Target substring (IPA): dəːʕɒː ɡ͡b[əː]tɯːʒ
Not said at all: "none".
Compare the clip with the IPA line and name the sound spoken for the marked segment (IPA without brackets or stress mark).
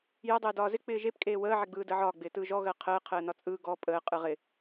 ɪː